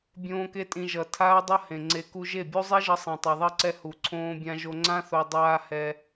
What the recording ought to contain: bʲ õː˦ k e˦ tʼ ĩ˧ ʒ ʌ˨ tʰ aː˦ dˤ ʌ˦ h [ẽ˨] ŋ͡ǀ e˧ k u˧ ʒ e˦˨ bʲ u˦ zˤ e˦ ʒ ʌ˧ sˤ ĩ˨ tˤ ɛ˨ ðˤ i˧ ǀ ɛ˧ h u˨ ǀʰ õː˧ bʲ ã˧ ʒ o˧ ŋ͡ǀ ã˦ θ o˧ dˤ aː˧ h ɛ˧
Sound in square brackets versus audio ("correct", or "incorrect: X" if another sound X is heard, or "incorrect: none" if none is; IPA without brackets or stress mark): correct